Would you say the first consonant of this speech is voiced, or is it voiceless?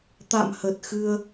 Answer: voiceless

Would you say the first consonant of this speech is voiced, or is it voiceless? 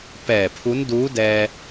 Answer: voiceless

